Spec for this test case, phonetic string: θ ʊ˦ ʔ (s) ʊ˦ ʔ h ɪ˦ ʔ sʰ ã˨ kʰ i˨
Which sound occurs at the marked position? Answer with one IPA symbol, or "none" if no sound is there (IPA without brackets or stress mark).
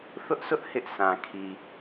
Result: s